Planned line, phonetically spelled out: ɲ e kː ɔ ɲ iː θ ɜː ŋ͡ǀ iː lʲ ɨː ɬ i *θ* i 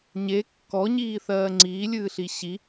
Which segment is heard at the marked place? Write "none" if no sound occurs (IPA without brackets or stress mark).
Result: ɕ